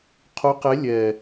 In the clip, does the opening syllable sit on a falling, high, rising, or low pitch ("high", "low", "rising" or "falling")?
rising